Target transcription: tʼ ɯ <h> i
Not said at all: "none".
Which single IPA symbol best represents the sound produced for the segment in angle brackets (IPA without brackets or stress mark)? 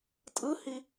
h